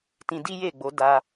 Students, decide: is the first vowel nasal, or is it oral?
nasal